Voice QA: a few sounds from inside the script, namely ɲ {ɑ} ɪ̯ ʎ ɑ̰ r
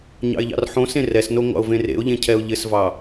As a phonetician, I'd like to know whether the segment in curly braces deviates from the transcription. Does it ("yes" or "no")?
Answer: yes